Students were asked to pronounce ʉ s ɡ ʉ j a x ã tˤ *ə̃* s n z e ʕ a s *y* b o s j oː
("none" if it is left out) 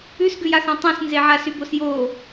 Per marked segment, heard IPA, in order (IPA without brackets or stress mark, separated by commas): ɛ̃, y